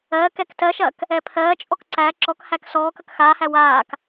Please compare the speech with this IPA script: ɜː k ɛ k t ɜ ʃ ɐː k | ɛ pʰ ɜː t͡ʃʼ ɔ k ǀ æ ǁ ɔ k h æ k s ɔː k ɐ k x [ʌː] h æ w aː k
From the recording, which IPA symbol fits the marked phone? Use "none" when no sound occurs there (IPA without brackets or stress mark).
aː